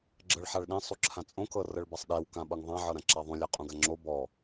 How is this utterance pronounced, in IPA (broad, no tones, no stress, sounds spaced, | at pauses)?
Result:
ɡ͡ǁ ɤ ɭ ħ a ɭ ɗ ẽ sˤ u ǁʰ ã t͡sʼ õ k ɤ r ɤ ɭ b a sˤ ɗ e w k ã ɓ ɤ ŋ ðˤ ã ʕ ɤ ɾ ã ǁ a ðˤ ũ lʲ a qʼ ũ ɡ a ŋ͡ǁ o b ɔ